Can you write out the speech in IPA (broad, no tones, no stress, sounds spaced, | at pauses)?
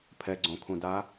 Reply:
pʰ ɛ ɡ͡ǀ õ kʰ ũ d a